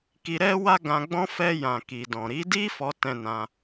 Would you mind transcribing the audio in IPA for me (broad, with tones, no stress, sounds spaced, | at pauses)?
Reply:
k i˧ ɾ ɛ˦ w a˦ ɡ ã˧ ɡ͡b ɔ̃˦ f ɛ˧ j ã˨ k i˨ d ɔ̃˨ ɾ i˨˦ d i˦ f ɔ˧ t ɛ̃˧ n ã˧